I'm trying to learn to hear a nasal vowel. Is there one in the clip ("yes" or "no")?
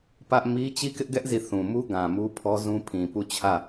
yes